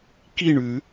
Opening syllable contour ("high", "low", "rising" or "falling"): falling